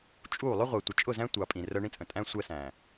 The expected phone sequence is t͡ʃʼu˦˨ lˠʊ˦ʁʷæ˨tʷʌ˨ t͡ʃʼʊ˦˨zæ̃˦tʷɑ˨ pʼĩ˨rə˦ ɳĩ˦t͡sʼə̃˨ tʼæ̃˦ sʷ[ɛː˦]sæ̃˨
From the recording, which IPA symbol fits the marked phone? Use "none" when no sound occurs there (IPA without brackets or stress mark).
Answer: ɛ˦